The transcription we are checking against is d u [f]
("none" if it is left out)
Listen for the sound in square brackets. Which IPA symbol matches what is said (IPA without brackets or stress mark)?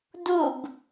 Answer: b